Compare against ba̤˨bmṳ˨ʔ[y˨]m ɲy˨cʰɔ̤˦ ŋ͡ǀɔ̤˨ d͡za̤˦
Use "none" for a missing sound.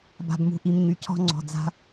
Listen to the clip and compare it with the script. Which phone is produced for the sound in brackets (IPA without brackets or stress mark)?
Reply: i˨